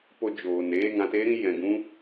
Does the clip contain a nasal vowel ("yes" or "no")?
yes